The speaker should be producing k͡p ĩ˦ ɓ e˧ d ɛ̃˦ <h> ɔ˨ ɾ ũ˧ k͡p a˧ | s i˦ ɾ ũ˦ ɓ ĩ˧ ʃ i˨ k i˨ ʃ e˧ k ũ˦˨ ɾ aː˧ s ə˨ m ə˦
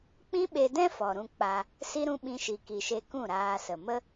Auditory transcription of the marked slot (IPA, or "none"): f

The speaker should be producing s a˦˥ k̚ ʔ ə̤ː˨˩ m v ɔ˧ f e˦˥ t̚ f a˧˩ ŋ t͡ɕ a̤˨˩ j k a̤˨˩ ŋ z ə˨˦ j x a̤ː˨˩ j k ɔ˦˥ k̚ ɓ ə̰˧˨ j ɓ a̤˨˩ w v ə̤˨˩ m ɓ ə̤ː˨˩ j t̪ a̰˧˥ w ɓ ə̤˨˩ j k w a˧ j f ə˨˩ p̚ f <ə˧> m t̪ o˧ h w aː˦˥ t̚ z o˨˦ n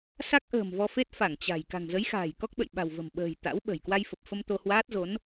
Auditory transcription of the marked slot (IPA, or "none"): ə˧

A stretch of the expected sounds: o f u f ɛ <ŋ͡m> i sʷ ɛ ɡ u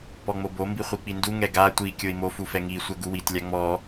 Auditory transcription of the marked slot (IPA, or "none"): ŋ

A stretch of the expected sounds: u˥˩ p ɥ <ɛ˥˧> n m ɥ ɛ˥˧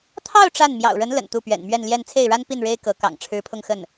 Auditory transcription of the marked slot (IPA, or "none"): ɛ̰˨˩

